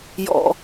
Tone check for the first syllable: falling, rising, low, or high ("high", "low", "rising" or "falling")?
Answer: high